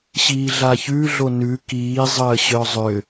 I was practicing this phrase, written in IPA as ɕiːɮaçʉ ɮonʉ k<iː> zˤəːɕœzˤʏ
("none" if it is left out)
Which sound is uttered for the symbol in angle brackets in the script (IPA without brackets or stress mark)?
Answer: iː